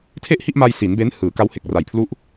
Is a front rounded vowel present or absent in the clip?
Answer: absent